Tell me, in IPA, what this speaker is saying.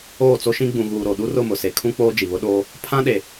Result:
oː˦˨ t͡s o˦ ʃ ĩ˦ ɡ͡b ũ˨ ɣ uː˨ ɾ o˨ ɗ u˦ r ʊ˦˨ m ʊ˨ s e˨ kʰ ũ˦ k͡p oː˦ d͡ʒ i˨ β ʊ˦ ɗ oː˦ | pʰ ã˦ ɗ e˨

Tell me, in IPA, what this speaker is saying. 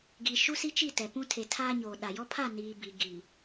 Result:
ɡ i˨ ʃ u˦ s i˦ t͡ʃ i˦˨ t ɛ˨ p ũ˦ tʰ e˨ tʰ aː˦ ɲ oː˨ ɗ a˨ j ɔ˦ pʰ a˦˨ n iː˨ b i˨ ɡ i˨

